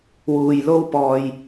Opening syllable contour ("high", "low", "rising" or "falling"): low